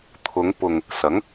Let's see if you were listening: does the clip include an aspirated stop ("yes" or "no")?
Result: yes